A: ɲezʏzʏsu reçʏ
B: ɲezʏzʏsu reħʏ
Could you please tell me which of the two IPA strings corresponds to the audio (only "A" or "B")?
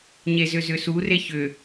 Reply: A